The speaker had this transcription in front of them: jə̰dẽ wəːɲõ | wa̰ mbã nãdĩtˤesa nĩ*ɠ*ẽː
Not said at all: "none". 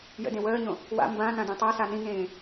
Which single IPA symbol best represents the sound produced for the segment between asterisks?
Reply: ŋ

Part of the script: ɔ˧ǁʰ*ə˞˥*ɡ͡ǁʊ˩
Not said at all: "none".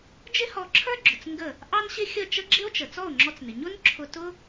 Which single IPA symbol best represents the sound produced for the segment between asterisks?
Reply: ə˞˥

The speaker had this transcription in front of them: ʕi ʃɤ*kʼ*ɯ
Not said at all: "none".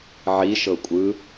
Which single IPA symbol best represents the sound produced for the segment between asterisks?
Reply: kʷʼ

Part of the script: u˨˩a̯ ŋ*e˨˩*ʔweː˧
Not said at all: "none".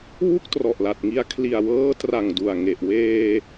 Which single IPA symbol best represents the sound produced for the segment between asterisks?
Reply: e˨˩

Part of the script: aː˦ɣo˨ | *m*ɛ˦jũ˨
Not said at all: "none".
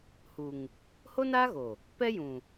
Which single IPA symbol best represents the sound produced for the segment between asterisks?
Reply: p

